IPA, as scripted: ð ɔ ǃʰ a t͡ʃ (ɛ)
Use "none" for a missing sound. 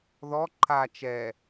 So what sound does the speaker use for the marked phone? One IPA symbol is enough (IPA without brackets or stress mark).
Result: ɛ